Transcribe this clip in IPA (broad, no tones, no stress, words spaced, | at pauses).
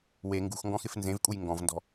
we ŋɡṳxŋɡɔ̃xɪf nzẽvkʼuj ŋɡɔ̃vndɔ̤